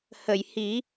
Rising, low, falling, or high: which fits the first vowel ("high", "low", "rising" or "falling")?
low